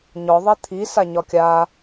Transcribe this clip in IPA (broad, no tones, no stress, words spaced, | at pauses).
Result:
ɲɔ ðˤit̪ʰi saɲɒkʲa